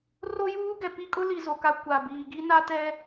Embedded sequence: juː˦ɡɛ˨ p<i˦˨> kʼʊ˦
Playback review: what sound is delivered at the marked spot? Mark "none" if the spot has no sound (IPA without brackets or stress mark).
i˦